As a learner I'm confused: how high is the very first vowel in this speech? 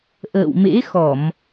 mid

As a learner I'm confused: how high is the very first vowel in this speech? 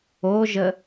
mid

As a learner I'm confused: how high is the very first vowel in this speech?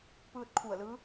high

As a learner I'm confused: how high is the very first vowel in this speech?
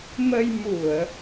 mid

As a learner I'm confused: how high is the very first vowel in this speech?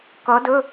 mid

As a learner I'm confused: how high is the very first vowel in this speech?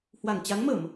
low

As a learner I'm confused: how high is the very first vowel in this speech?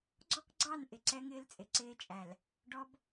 mid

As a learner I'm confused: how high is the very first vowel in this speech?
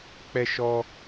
mid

